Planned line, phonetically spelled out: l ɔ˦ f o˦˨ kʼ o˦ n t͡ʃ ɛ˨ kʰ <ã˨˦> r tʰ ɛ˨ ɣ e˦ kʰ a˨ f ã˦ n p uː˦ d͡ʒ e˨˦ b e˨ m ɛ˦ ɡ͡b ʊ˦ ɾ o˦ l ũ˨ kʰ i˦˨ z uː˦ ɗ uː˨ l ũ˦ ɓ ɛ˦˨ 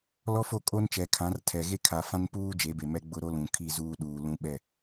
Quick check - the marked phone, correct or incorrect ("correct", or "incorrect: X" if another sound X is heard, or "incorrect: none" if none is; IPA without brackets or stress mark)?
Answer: correct